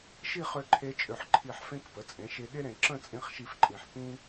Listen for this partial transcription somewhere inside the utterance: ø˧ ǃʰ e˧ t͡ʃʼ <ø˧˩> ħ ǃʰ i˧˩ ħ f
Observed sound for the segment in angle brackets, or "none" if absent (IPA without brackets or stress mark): ø˧˩